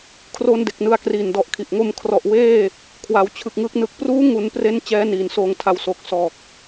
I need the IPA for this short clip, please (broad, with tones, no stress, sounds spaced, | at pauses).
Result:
kʰ r o˧ n d e˨˩ k̚ n ɯ˧ a̯ k r iː˨˩ n d ɔ˨˩ ʔ kʰ i˨˩ ʔ ŋ o˧ m kʰ r ɔ˨˩ ʔ w eː˥˩ | kʰ w a˩˦ w t͡ɕʰ ɯ˨˩ k̚ ŋ ɯː˦˥ k̚ n ɯ˨˩ k̚ p r uː˦˥ ŋ u˩˦ n p r e˥˩ n t͡ɕ ɛː˦˥ n iː˩˦ n s oː˨˩ ŋ tʰ a˨˩ w s o˨˩ k̚ s ɔː˨˩ k̚